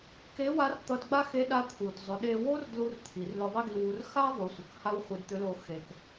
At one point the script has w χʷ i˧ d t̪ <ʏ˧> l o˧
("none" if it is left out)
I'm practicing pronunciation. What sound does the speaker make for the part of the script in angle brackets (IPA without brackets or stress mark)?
ʏ˧˥